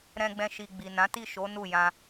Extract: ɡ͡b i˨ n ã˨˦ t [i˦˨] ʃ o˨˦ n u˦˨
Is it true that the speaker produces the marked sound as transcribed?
yes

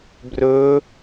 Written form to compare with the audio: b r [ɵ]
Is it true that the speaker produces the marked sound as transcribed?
yes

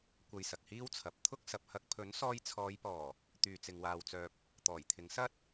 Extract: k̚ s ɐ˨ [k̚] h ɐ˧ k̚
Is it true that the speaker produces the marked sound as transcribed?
no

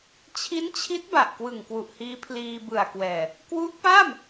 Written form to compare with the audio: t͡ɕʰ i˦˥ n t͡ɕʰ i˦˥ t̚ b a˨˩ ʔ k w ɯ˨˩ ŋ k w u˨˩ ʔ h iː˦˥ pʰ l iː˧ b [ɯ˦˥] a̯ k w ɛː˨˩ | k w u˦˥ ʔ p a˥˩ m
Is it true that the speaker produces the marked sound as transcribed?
no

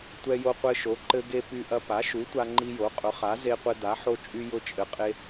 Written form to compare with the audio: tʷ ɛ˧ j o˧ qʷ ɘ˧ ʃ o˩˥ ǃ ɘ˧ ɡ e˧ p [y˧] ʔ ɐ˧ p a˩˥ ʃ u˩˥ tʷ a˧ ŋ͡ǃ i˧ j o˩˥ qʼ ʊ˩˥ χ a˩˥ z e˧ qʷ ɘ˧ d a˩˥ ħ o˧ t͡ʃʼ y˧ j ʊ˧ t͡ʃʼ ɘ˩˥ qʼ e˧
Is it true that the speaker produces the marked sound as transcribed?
yes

